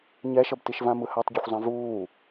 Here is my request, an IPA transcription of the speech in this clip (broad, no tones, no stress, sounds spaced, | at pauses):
ɲ ɛ ʃ ʌ b t i ʃ v ã m ɯ h a tˤ ɟ ɯ xʷ zˤ ẽ v uː